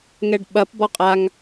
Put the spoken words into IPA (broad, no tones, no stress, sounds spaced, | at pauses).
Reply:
ŋ ɛ ɖ ɓ ɐ p b ɔ qʼ a ŋ